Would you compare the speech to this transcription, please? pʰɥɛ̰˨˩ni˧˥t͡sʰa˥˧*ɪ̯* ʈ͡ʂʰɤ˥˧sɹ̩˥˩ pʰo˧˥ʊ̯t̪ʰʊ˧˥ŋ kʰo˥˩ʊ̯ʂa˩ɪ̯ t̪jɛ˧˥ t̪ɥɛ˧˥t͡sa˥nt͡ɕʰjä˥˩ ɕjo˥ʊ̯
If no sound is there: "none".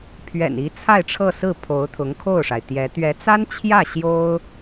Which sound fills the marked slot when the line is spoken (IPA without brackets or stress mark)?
ɪ̯